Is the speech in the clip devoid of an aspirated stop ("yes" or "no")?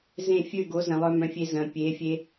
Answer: yes